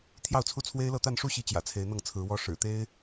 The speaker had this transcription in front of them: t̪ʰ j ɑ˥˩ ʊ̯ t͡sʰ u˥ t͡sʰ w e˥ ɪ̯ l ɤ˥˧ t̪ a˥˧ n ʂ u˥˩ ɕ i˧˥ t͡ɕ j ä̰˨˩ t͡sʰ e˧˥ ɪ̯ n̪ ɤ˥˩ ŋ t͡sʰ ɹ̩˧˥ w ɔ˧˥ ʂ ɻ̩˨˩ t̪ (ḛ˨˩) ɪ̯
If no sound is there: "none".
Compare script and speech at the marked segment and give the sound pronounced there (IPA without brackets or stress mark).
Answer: e˥